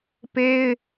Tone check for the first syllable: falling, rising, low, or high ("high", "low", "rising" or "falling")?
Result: high